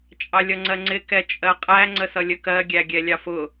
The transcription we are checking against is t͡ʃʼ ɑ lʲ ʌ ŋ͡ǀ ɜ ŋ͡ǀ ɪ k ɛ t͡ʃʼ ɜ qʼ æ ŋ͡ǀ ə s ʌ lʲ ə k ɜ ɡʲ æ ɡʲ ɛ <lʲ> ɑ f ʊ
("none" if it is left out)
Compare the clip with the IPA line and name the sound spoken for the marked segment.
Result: lʲ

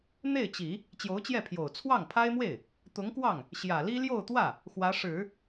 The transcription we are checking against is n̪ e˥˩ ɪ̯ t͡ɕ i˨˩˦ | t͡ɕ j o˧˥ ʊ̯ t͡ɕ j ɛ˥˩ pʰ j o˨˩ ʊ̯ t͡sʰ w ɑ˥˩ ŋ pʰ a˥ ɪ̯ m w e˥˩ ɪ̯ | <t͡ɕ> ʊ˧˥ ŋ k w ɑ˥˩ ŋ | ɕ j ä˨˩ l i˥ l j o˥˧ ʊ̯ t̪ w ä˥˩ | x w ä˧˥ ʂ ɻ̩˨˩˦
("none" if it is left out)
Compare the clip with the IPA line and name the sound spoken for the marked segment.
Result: t̪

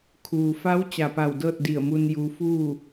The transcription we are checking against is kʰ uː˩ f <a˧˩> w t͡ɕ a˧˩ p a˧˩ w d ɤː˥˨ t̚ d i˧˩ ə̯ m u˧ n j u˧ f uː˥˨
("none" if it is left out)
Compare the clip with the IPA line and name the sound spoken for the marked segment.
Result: a˧˥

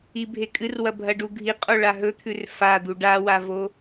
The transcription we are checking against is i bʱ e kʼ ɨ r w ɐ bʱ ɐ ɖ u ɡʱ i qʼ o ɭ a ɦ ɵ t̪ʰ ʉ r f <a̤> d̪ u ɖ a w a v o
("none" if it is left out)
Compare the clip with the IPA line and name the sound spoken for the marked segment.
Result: a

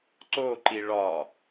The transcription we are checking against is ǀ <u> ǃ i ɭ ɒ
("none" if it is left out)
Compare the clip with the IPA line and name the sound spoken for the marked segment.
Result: o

